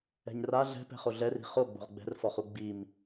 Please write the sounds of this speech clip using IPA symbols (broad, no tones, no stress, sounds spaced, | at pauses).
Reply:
ɛ̤ ɲ r a ɮ ɛ̤ p ɛ̤ χ o ɮ ɛ r i̤ χ o ɡ͡b o̤ ʁ ɡ͡b ɛ̤ r f ɔ χ u ɡ͡b i m